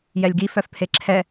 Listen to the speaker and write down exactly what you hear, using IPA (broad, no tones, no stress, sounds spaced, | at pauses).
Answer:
j ɛ lʲ ɡ i f œ f pʰ e ǁʰ ɛ